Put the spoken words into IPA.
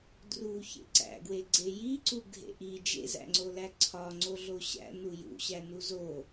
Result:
d r u ç ḛ ǀ æ̰ ɡ w e ɡ͡ǀ e j i ǀ u ɡʱ ḛ ʔ i d͡ʒ ḛ z æ̰ ŋ͡ǀ o l æ ǀʰ ɒ ŋ͡ǀ o ɮ o ɕ æ̰ n u j ṵ ɕ æ n u z o

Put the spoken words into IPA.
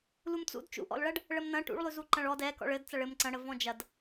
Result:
l u m t͡s ṵ d t͡ʃ ṵ ʔ ɔ̰ l ɭ ɐ ɖ | ɭ ə m n ɐ̃ ʈ ṵ ɭ lˠ ʉ z u ǃ ɐ̃ ɭ ɔ d ɛ k ɔ̰ ɭ ɘ d t͡s ɐ ɭ ɘ m ǀ ɐ̃ ɽ ə v ɔ̃ d͡ʒ ɐ d

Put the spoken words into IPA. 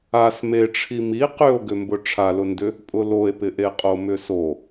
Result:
a s m e ʈ͡ʂʰ i m i q ʏ o̯ ɡ ʏ m b ʊ ʈ͡ʂʰ a l ʊ n d ʏ | pʼ ʊ l o e̯ p ɪ ʔ e qʼ o m ʏ s o

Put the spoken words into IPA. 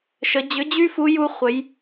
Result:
ʃ ə˩˧ d͡ʑ ʏ˨˥ d͡ʑ y˥ f u˨˥ j u˥ χʷ ə˨˥ j

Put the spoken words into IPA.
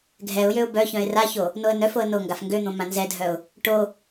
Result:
ɡʱ ɛ ʊ̯ j ø ʊ̯ b œ ç œ̃ ɪ̯ r a ç o | n o ə̯ n œ f o ə̯ n o ŋ ɡ a f ŋ ɡ ø n̪ õ m ã n z ɛ dʱ œ ʊ̯ | ʈ o

